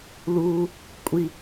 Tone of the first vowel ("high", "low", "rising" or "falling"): low